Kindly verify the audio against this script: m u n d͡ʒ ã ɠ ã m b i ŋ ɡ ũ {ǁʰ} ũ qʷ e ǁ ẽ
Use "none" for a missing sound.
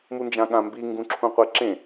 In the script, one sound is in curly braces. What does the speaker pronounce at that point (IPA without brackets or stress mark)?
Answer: ǁʰ